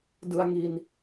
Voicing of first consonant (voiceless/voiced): voiced